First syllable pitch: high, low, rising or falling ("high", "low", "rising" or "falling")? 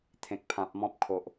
low